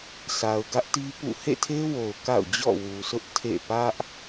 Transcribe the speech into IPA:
sʰ a˨ ʊ̯ ɡ ä˦ ʔ t i˦ p ṵ˦˨ h ḛ˦˨ tʰ e˦ w o˨ ʊ̯ k a̰˦˨ ʊ̯ d͡ʑ ɔ̰˦˨ w u˨ s ʊ˦ ʔ tʰ ḛ˦˨ p ä˦ ʔ

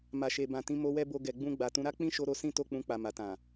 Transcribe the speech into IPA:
m a˨ ʃ e˨ b ã˨ t ĩ˧ m o˧ w ɛ˦ b o˧ ɡ ɛ˨ ɡ͡b ũ˧ ɡ͡b a˨ t ũ˨˦ ɾ a˦ k͡p ĩ˦ ʃ o˧ ɾ o˧ s ĩ˦ t o˦˨ k͡p ũ˧ k͡p a˨ m a˨ t ã˨

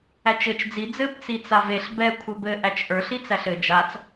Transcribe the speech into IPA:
æ t͡ʃ ɘ t͡ʃ d͡z i d͡z ɘ b t͡s i t͡s a v e ɬ b ɛ kʷʰ ɘ b ɘ ʔ æ t͡ʃ ʔ ə˞ ɬ i t͡s æ ɬ ɘ d͡ʒ a t͡s

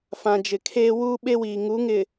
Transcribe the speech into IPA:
f ã˨ d͡ʒ ɪ˨ kʰ eː˦ w uː˦ ɓ e˦ w iː˨ ŋ u˨˦ ŋ ɪ˨

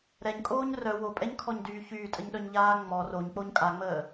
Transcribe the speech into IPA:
ɾ ɛ ɲ kʼ oː ɲ r œ w o pʼ ɛ ɲ kʰ ɔ ɲ d yː ç yː tʼ ə ɲ ɗ œ ɲ ʎ aː ŋ͡m ɔ r o ɲ k͡p o ɲ kʼ a ŋ͡m əː

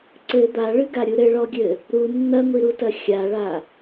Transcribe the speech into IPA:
ǀ ɘ d̪ a ɭ ɨ ɡ a ɾʲ u ɾ ɘ ɭ ɔ ɡʲ ɘ | ɾ u nː ɐ ŋʷ i ɾ u t ɐ xʲ a ɭ a

